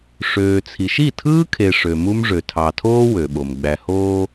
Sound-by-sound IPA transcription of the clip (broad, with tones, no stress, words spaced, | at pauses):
ʂøː˨t͡sʰi˨ʃ i˦˨tʰɯː˦kʰe˨ ʂø˨mu˦m ʐø˨ tʰɑ˨tʰoː˦ wø˨ɓo˨m ɡ͡bæ˨hoː˦